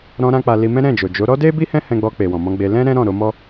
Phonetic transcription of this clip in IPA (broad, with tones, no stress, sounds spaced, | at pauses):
ɾ ɔ̃˧ ɾ ã˧ k͡p a˧ l i˧ m ɛ̃˦ ɾ ɛ̃˦˨ d͡ʒ o˨ d͡ʒ o˨˦ ɾ ɔ˦ d e˦ b i˦ h ɛ̃˦ h ɛ̃˧ ɡ͡b ɔ˧ k͡p e˨ w ɔ̃˨ m ɔ̃˧ ɡ͡b e˧ l ɛ̃˦ ɾ ɛ̃˦ ɾ ɔ̃˦˨ ɾ o˧ m ɔ˦